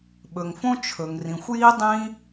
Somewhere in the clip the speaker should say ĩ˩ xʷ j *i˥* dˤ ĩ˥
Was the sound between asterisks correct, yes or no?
yes